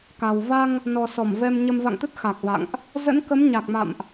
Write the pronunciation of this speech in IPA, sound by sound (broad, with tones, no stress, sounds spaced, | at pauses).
k a˨˩ w v a˧ ŋ | n ɔ˨˩ s ɔ˧˩ m v ɛ˧ m ɲ ə˧ m v a̰˧˨ ŋ t̪ ə˦˥ t̚ x a˨˩ k̚ v a̰˧˨ ŋ ʔ | z ə̰˧˥ n k ə˨˦ m ɲ a˨˩ k̚ m a̰˧˨ m ʔ